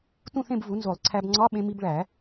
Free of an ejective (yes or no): yes